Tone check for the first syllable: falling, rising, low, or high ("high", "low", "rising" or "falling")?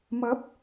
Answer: rising